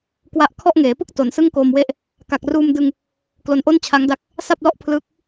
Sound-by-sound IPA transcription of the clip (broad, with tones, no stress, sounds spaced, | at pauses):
k w a˦˥ ʔ kʰ ɔ˥˩ ʔ ŋ eː˩˦ p ɯ˥˩ k̚ t o˩˦ n s ɯ˥˩ ŋ k oː˧ m w e˥˩ ʔ | k a˨˩ k̚ r uː˧ m d ɯ˧ ŋ | k l o˧ n ʔ o˥˩ n t͡ɕʰ a˦˥ ŋ d a˦˥ k̚ | s a˥˩ p̚ l ɔ˦˥ ʔ pʰ l ɯː˦˥ k̚